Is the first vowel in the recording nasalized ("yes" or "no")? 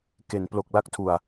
no